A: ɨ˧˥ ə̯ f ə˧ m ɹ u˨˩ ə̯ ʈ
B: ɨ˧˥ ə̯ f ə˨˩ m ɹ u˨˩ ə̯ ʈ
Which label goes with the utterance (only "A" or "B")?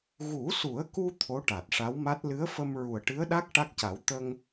A